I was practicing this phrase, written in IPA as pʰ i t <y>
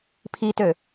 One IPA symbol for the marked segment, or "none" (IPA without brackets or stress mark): ø